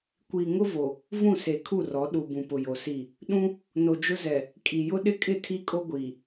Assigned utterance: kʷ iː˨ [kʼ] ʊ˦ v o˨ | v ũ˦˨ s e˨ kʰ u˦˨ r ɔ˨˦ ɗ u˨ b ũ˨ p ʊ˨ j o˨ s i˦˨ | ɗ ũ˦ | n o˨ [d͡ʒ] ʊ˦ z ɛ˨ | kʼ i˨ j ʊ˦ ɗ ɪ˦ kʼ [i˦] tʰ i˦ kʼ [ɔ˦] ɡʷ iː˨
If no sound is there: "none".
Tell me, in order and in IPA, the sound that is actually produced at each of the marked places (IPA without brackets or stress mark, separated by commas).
ŋ, d͡ʒ, ɪ˦, o˦